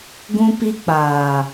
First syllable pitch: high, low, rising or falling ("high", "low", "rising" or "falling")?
high